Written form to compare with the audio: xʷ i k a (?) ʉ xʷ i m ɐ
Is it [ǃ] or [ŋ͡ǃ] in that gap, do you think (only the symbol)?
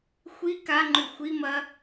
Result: ŋ͡ǃ